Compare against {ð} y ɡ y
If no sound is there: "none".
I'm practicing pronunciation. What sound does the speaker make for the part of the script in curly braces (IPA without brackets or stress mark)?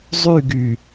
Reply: zˤ